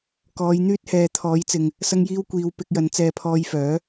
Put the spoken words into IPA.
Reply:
k ɔː˨˧ j n̪ yː˥ t̚ h ɛː˨ t̪ʰ ɔː˨˥ j t͡s ɪ˨ ŋ | s ɐ˧ ŋ j iː˧ w kʷ iː˨ w p ɪ˧ k̚ j ɐ˨˧ n t͡s ɛː˧ pʰ ɔː˧ j f œː˨˥

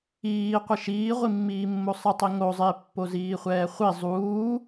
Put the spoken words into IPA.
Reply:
iː qʷ ɪ ʃ iː ʁʷ i mː iː mː o sˤ ɪ tˤ i ŋ o zˤ ɪː pː o z iː χʷ ɛː χʷ i zˤ uː

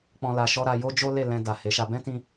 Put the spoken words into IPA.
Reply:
k͡p ɔ̃˦ l a˧ ʃ ɔ˦ ɾ a˧ j o˦ d͡ʒ o˦ l e˦˨ l ɛ̃˧ d a˨ h e˨˦ ʃ a˧ b ɛ̃˦ t ĩ˦

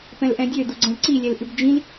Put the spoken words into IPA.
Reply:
p ɛ̃ l ʔ ɛ̃ dʲ ø d u ɡ͡ǀ ɛ̃ l ǀ i lʲ ɛ l ʔ ʉ b d͡ʒ ĩ l

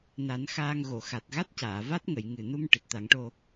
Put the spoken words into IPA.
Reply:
n a˨˩˦ n x aː˧ ŋ ɣ o˨˩˨ x a˨˩ t̚ ɣ a˦˥ t̚ c aː˨˩˨ v a˦˥ t̚ ŋ ə˨˩˨ j ŋ ɨ˨˩ n u˧ m ʈ ɨ˨˩ t̚ t̪ a˨˩˦ ŋ ʈ o˧

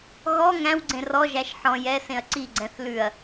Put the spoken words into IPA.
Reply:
ɣ ɔ ŋ æ̃ w ɡ͡ǀ ẽ r ɔ ʒ æ ʃ ħ ɔ̃ j ɛ s ẽ ɐ̯ ǀ i ɡ͡ǀ ɛ̃ θ l ʉ ɐ̯

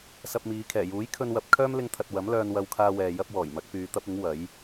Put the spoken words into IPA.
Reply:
s ɐ˧ p̚ m iː˨˧ kʰ ɛː˨˩ j uː˨˥ j kʰ ɵ˧ n w ɐ˨˥ p̚ kʰ œː˥ m l ɪ˧ ŋ t̪ʰ ɐ˨ t̚ w ɐ˨˥ m l œː˧ n w ɐ˧ w kʰ aː˧ w ɛː˨ j ɐ˥ p̚ w ɔː˨˩ j m ɐ˨˥ k̚ p yː˨˧ t̪ ɐ˥ p̚ ɪ˨˥ ŋ w ɐ˨˥ j

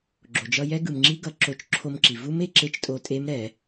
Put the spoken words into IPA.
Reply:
ɡ͡ǁ o˩ d͡ʒ ʌ˧ j ɛ˦˥ ɡ ɯ˩ m ŋ͡ǁ i˦˥ ɡ ʌ˧˩˧ ǁ o˧˩˧ t͡ʃ ǁʰ o˧ m ǁ i˩ v u˦˥ m e˧ ǁ e˧˥˧ t͡ʃ tʼ o˧ tʼ e˦˥ m ɾ ɛ˧˩˧

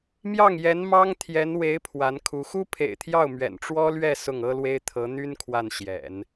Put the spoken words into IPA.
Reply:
m j ɑ˥˩ ŋ j ɛ˧˥ n m ɑ˥ ŋ t̪ʰ j ɛ˧˥ n w e˧˥ ɪ̯ pʰ w a˧˥ n kʰ u˧˥ x u˥ pʰ ḛ˨˩ ɪ̯ t̪ʰ j ɑ˥˩ ʊ̯ m ɥ ɛ̰˨˩ n ʈ͡ʂ w ɔ˥ l ɥ ɛ˥˧ s ʊ˥˩ ŋ ɤ˥ l w e˥ ɪ̯ t̪ʰ ɤ˧˥ n̪ y˥ n kʰ w a˥˩ n ɕ j ɛ̰˨˩˦ n

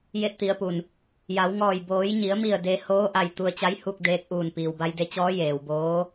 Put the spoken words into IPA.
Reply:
j e˧ t̚ t̪ i˩˧ ə̯ p u˩ n | j a˩˧ w ŋ ɔː˧˩ j b oː˩˧ j ɲ i˩˧ ə̯ m i˧˩ ə̯ d e˧ h oː˧˥ ʔ a˩ j t̪ u˧ ə̯ t͡ɕ a˧˥ j h u˥˨ k̚ d eː˧ k̚ ʔ uː˧˩ n p iː˩ w b a˧ j d e˧ t͡ɕ ɔː˧˥ j eː˩ w b oː˧˥

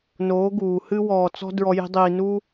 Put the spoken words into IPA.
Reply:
n oː˨˦ ɡ uː˨ h ɨ˦ w ɔː˧ t͡s ɔ̤˦ d ɹ ɔ˦ j i̤˦ dˤ iː˧ n u˦

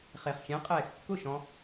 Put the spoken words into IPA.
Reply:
χ e˩ χ xʲ ɛ̃˩˥ qʼ ɛː˩ x kː ʊ˥˩ ʃ ɔ̃˧

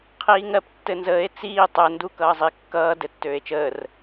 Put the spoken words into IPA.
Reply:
qʰ iː ŋ ɜ p tː ɘ n z əː e̯ t͡s iː tˤ ə n d u k ʌː zˤ i kː ʌː d ɘ tː øː e̯ t͡ʃ əː r

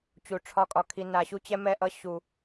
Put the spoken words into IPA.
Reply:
t͡ɕ u˨˩ ʈ͡ʂʰ ɒ˧ kʼ ɒ˧ kʰ i˧ n a˨˩ ɕ u˧ t͡ɕ ɛ˧ m ɛ˧ ʔ ʌ˧ ɕ u˨˩

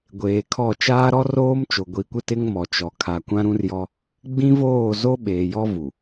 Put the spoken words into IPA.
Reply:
ɡʷ eː˨ kʰ ɔ˦˨ t͡ʃ aː˦ ɾ ɔ˦ r oː˦ m t͡ʃ o˨ ɡʷ i˨˦ kʷ ɪ˦ t ɪ˦ ŋ m ɔ˨ t͡ʃ ɔ˨ kʰ a˨ kʷ ã˦ ɾ ũ˦ r j ɔ˦ | ɡ͡b ĩ˦ v oː˦˨ z o˦ ɓ eː˨ j ɔ˦ v u˨

